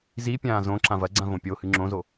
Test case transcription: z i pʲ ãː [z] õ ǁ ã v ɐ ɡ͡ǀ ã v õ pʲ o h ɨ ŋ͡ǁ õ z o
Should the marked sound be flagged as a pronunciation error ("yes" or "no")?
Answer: no